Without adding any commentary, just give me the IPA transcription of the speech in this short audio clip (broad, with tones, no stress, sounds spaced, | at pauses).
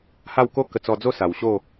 h a˥˧ w k o˥˧ k ə˧ t͡s ɔ˧ d͡z o˥˧ s a˨˩ w ɕ o˥˧